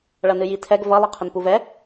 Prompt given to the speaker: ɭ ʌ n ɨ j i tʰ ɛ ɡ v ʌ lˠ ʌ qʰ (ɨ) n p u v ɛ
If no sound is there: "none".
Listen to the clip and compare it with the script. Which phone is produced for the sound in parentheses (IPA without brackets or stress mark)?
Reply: ə